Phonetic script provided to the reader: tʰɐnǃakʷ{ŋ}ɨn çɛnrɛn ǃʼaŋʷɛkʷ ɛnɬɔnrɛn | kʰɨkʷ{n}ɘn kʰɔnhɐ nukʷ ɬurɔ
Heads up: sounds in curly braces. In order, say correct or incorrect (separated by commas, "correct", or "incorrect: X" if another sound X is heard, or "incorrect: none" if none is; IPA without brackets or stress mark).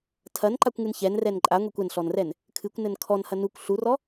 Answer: correct, correct